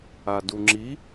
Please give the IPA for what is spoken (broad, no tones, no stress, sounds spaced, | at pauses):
a d u ŋ͡ǁ i